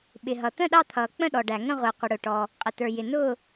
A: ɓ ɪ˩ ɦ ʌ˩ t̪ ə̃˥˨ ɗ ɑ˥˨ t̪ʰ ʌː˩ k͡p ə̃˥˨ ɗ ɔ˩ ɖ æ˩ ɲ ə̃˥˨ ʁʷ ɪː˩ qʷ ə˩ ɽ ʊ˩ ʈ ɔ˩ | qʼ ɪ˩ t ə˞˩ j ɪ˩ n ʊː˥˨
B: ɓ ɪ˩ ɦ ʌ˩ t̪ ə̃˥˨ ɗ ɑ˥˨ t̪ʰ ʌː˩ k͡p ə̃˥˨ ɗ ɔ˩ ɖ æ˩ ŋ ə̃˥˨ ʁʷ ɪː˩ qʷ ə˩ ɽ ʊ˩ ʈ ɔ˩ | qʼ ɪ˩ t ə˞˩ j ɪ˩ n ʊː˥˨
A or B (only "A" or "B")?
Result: B